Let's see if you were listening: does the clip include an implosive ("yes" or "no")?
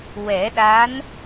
yes